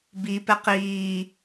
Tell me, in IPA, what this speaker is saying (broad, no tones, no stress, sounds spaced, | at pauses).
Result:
b i p ɛ q iː